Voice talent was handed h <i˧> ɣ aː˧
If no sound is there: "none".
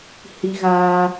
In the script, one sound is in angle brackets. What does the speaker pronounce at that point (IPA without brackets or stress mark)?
i˧